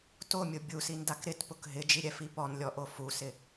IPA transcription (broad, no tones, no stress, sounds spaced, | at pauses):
t o mʲ ʊ bʲ u s i n d a k ɾ ɪ t p ʊ k ɦ ɪ d͡ʒ i ɾʲ ɛ f i p ɔ n lʲ ɔ ʔ o f u s ɪ